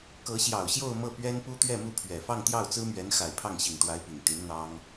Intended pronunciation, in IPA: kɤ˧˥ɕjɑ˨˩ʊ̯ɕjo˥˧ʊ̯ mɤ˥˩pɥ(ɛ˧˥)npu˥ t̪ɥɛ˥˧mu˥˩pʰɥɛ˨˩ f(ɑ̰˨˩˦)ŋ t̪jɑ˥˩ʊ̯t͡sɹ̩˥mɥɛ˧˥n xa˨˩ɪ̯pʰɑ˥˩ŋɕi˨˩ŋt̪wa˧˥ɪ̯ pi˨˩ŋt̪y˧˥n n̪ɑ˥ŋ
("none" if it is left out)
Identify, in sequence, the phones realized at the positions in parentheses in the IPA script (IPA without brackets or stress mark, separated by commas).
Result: ɛ˥, ɑ˥˧